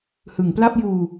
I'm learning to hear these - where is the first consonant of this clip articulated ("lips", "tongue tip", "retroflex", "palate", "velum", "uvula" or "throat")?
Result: throat